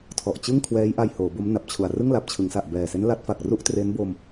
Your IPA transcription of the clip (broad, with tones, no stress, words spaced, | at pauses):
tʰɔ˨˩ʔt͡ɕɯ˥˩ŋ kʰwɛː˦˥jʔa˧j hoː˩˦bo˦˥mna˨˩p̚t͡ɕʰu˨˩a̯ rɯ˥˩ŋla˨˩p̚t͡ɕʰɯ˩˦ŋsa˨˩ʔ bɛː˨˩se˦˥n la˦˥t̚fa˨˩k̚ ru˥˩ʔ tre˦˥nbo˧m